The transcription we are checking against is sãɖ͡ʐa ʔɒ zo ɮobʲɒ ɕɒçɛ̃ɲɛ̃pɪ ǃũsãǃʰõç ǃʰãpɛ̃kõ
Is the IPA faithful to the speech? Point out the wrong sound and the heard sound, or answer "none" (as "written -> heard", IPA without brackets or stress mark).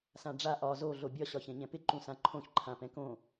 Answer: none